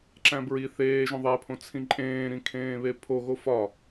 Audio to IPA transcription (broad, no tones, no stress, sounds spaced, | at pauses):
ǁ æ̃ b ɹ i θ eː ʒ õ ðˤ æ pʰ õ t͡sʰ ĩ ǃʼ ẽː ɾ ĩ kʰ ẽː β e pʰ o ɣ o f ɒ